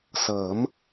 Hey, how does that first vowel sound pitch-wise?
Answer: rising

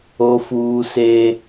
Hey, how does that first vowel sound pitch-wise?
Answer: high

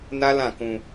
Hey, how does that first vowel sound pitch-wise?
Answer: high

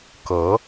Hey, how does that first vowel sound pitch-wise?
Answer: rising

